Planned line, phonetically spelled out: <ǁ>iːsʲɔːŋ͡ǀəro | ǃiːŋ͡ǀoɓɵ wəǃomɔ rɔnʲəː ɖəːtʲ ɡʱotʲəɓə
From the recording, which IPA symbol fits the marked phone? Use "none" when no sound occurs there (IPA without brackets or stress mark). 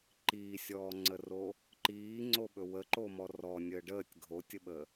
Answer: ǃ